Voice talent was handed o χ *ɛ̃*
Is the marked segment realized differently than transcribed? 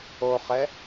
yes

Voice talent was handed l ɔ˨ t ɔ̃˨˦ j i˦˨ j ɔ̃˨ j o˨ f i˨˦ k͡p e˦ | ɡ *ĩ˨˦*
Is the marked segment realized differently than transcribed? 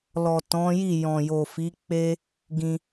yes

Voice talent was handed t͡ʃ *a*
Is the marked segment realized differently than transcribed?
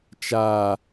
no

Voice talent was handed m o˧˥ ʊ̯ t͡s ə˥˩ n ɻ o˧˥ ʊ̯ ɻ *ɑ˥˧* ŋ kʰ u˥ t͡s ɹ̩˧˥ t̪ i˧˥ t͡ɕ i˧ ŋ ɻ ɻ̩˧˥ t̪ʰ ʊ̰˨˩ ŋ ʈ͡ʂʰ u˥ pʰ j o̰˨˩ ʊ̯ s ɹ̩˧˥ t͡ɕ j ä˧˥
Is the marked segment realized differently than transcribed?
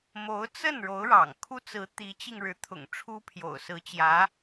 yes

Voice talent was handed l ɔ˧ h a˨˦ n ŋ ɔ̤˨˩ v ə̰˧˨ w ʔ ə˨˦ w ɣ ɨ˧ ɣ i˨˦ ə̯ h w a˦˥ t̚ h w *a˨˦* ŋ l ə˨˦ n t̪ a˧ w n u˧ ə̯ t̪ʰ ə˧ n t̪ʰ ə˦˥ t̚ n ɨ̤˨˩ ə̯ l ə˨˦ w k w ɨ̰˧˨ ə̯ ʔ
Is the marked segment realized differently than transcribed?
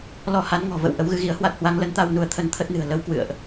no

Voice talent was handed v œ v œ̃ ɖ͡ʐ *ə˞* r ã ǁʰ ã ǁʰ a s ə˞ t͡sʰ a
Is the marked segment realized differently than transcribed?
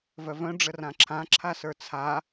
yes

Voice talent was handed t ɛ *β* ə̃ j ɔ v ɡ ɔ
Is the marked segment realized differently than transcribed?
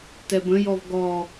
yes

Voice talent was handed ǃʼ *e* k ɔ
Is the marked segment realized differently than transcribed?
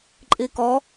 yes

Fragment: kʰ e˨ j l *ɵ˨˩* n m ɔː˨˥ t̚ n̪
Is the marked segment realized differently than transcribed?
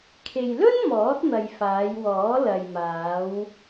yes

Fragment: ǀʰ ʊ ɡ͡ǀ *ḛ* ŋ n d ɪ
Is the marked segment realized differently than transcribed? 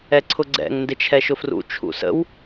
yes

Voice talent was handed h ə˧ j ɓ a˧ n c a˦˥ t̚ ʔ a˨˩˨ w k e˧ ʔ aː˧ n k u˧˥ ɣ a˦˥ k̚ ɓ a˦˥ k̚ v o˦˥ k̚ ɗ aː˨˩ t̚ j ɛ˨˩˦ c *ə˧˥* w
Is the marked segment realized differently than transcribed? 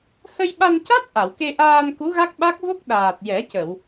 yes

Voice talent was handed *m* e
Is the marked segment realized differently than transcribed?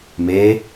no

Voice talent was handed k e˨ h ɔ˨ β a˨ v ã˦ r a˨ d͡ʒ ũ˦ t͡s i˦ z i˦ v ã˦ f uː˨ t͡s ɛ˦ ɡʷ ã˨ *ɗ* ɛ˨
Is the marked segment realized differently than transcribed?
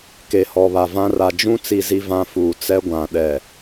no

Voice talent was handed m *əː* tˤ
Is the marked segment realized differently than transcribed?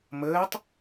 no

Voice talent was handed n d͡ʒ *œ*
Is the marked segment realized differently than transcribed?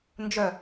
no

